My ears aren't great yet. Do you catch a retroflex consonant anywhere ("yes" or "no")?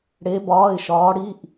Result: yes